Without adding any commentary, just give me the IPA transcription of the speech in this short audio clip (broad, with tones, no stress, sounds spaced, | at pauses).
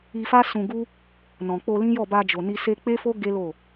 i˧ f a˦ s ũ˧ ɡ u˦ | n ɔ̃˨ k͡p o˧ l ĩ˦ j ɔ˦˨ b a˧ d͡ʒ o˨ n i˧ s e˧ k͡p e˦ f o˦ ɡ e˦ l o˦˨